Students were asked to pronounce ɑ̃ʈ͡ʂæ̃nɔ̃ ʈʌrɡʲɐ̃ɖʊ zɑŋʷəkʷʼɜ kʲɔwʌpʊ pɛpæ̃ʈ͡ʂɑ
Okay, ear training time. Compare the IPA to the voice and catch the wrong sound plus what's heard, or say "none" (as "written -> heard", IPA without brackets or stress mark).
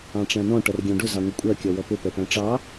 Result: ɐ̃ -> ɑ̃